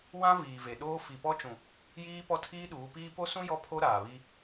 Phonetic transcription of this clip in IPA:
w ã˦ v iː˨ v e˨ ɗ oː˦ f i˨ p ɔ˦ t͡ʃ ũ˨ | j iː˦ p ɔ˦ tʰ iː˦ ɗ uː˨˦ p iː˦ p o˦ s ũ˦ j ɔ˦ pʰ o˦ ɾ aː˨ β i˦

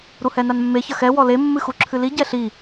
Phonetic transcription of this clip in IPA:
ɾ u h ɛ n a n mː e ç ɐ x ɛ w ɔ l e mː ɨ x u ǁʰ ɨ l i ɟ ɛ ɬ i

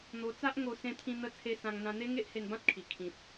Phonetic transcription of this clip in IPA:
n̪ o˧ t͡s a˦ ʔ ŋ o˧ s ẽ˧ t̪ʰ ĩ˧ n̪ ə˥˧ t͡sʰ e˧ s ã˧ ŋ n̪ ã˧ n̪ e˦ ŋ e˦ ʔ h e˧ n b ã˦ t̚ kʰ i˨˩ kʰ ĩ˨ t̚

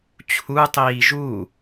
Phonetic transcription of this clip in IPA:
t͡ɕʰ u tˤ iː ʒ u

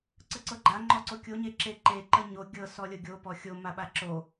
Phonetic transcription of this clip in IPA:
ǀ ə ǀ ɤ ɡ͡ǃ a ŋ͡ǃ ɔ ǀ o kʲ o ɲ e ǁ e ǃ e ǃ ə ɲ o ɡʲ ɤ s ɔ lʲ ɤ ɡʲ o p ɔ xʲ o m a ɓ a ǁ o

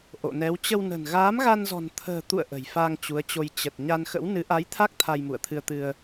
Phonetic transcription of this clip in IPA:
ʔ o̰˧˨ n ɛ˨˦ w t͡ɕ ə˧ w n ə̤˨˩ n ɣ aː˨˦ m ɣ a˧ n z ɔ̤˨˩ n t̪ʰ ə̤ː˨˩ t̪ ṵ˧˨ ə̯ ʔ ə̤˨˩ j f a˧ ŋ t͡ɕ u˨˦ ə̯ t͡ɕ o˧ j t͡ɕ ə˨˩ t̚ ɲ a˧ n x ə̰˧˥ w n ɨ˨˦ ʔ a˨˦ j t̪ʰ a˦˥ k̚ t̪ʰ a˧ j m ṵ˧˨ ə̯ t̪ʰ ɨ˧ ə̯ t̪ ɨ˧ ə̯

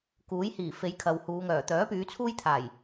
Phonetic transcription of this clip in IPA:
k uː˨˥ j h iː˨˩ f e˨˧ j kʰ ɐ˨ w h uː˨˧ ŋ œː˨˩ t̪ œː˨˥ p yː˨˧ t͡sʰ uː˥ j t̪ʰ aː˨˩ j

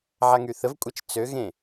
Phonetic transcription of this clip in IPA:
ʕ a ŋ y θ ə v kʷʼ ɛ t͡ʃ t͡s ø ɣ ẽ

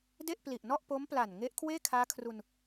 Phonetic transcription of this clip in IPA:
d e˥˩ ʔ p l i˨˩ ʔ n ɔ˥˩ ʔ p o˦˥ m p l a˨˩ n ŋ e˦˥ ʔ kʰ w eː˥˩ kʰ aː˦˥ kʰ r u˧ n

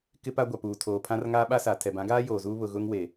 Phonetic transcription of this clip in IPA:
k ɪ˦ p a˦ ɡʷ a˨ p uː˨ tʰ oː˨ pʰ ã˦ r ŋ aː˦ ɓ a˦ s a˨ tʰ ɛ˨ b ã˨˦ ɡ aː˦ j oː˨ z uː˦ β ʊ˨ ɣ ʊ˦ ŋ w e˨

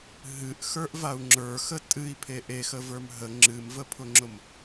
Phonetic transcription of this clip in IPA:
ɦ ɨ ʔ x ə˞ ʔ v a u̯ ŋ͡ǁ ə˞ x ə tʼ ɨ i̯ pʰ e ʔ e x ə v ə˞ m ɦ ə ŋ͡ǁ ɨ m v ə pʰ ʊ ŋ͡ǁ ʊ m

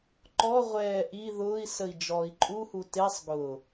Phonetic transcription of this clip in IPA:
ǃ ɔ ʁʷ ɛː ʔ i ð ʊː i̯ s ə i̯ d͡ʒ ɔː i̯ ǃʼ u h u t e sˤ ɡ ʊ

